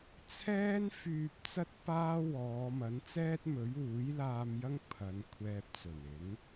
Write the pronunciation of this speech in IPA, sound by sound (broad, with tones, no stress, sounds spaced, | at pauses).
t͡sʰ ɛː˥ n f yː˧ p̚ t͡s ɐ˥ t̚ p aː˥ w ɔː˨˧ m ɐ˨˥ n t͡s ɛː˥ t̚ m ɵ˨˥ ɥ uː˨˥ j l aː˧ m j ɐ˥ ŋ pʰ ɐ˨˧ n kʷʰ ɛː˧ p̚ t͡s ɵ˨˩ n ɪ˨˥ ŋ